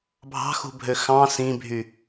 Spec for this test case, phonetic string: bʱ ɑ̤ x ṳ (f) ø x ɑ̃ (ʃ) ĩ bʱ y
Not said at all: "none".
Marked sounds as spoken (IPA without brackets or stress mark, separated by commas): bʱ, s